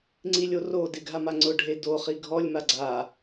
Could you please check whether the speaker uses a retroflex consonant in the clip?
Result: yes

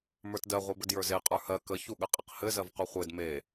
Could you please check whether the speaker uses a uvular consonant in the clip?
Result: yes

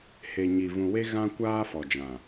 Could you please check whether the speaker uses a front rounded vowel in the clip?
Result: no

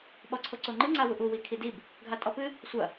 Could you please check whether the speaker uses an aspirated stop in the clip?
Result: yes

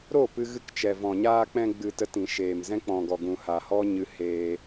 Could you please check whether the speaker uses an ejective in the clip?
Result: no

